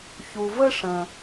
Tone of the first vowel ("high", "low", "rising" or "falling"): low